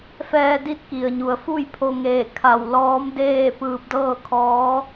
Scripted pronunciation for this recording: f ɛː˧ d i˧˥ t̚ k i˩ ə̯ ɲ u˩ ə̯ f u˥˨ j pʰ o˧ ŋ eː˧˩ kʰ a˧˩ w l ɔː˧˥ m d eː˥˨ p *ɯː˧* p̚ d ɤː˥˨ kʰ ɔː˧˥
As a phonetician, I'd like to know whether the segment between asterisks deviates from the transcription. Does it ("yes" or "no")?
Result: no